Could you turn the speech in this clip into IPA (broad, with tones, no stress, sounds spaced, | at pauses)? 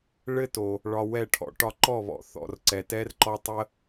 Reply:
ɭ ɘ˦ t o˨ | ɭ ɒ˧ w ɛ˦˨ ʈʰ ɔ̰˨ ʈ ɒ˧ ǃ ɔ˦˨ β ɔ̰˨ θ ɔ̰˨ r ǀ ɛ˨ t ɛ˦ r ǃ ɔ˦ tˤ ə˦